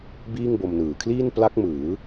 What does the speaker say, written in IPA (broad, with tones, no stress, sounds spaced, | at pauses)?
b iː˥˩ ŋ b o˧ m n ɯː˨˩ kʰ l iː˥˩ n p l a˦˥ k̚ m ɯː˩˦